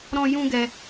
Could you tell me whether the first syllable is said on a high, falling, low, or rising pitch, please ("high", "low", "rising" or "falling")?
high